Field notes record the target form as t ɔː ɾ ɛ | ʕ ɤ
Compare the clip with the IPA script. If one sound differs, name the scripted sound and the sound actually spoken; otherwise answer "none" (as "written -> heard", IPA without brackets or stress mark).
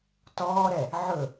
ɤ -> ɵ